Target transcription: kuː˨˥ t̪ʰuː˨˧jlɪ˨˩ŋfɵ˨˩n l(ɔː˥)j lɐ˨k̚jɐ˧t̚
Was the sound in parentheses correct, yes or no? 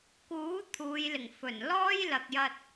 yes